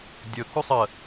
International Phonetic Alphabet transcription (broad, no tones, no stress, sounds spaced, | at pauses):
dʲ ɵ k u sˤ ə